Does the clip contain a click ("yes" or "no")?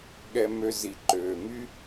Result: yes